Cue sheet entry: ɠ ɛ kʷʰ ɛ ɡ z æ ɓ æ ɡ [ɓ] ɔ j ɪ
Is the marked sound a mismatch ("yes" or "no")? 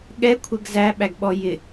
no